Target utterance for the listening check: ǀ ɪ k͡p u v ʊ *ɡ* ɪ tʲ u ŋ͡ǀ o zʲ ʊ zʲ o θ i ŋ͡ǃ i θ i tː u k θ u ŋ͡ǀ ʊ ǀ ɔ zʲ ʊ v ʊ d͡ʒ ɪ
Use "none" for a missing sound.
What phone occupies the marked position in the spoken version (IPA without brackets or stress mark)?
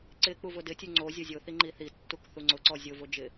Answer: d